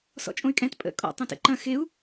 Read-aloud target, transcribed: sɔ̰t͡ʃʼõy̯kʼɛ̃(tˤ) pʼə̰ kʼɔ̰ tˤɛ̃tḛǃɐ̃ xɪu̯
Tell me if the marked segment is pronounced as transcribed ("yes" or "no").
no